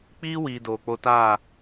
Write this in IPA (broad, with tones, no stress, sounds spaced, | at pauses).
k͡p iː˦ w iː˨ d oː˨ k͡p o˧ t a˦˨